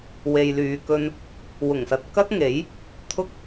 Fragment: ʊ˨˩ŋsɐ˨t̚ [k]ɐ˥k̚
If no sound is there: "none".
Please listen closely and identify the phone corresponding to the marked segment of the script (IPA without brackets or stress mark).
k